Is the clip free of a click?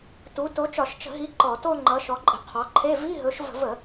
no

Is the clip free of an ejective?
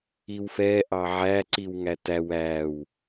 yes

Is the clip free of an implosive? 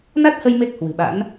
no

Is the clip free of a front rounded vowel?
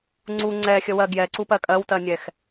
yes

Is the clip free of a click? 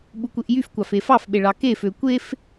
yes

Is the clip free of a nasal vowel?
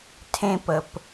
no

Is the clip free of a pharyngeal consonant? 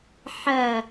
no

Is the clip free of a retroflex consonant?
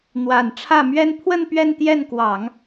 no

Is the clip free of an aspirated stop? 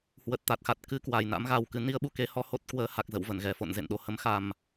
yes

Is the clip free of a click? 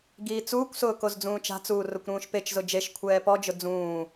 yes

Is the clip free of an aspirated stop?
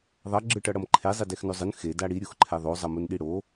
no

